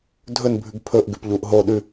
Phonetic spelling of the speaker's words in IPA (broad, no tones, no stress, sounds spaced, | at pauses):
dʱ ɵ n bʱ ʉ ɡ pʰ ɵ ʔ ɡ ʉ p ʎ u ʔ ɦ o ɗ ʉ